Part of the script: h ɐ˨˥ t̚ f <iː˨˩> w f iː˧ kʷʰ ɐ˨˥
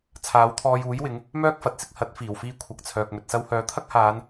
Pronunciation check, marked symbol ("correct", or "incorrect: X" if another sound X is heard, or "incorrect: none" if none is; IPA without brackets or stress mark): correct